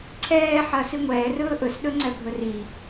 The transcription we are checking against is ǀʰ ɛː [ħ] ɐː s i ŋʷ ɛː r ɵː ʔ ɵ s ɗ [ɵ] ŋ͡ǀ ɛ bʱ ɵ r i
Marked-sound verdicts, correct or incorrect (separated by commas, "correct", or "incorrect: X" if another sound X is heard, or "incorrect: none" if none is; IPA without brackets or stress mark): correct, correct